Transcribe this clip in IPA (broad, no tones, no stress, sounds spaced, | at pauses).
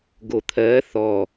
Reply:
ɡ o t̪ʰ ɜ θ ɔ